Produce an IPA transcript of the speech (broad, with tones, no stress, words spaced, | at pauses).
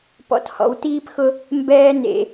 pɔ̰˨thɔ̰˨wtiː˦pxʊ˦ | mbɛː˦nḛ˨